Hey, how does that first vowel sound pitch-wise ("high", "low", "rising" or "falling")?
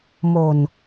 low